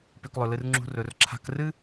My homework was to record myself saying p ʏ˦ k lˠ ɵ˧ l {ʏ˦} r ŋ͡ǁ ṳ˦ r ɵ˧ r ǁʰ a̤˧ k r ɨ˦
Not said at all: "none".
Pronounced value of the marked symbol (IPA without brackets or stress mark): ɨ˦